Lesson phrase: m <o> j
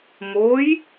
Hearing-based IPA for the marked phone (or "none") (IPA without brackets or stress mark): o